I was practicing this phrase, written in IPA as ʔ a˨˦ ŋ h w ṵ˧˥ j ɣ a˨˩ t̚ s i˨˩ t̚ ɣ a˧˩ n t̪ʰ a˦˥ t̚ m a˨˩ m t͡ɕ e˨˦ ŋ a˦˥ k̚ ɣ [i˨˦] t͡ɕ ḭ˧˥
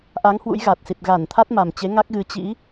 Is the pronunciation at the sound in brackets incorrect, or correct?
incorrect